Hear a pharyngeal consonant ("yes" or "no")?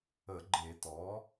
no